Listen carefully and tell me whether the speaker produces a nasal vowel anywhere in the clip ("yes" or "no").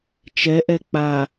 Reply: no